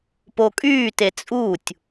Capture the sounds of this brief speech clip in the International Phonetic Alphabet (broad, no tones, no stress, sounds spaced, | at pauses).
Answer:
p o kʼ yː t e t͡sʼ u tʲ